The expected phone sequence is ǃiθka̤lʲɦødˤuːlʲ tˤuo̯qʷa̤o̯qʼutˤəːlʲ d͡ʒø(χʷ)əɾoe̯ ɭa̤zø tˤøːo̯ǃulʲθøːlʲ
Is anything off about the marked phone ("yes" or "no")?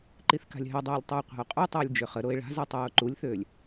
yes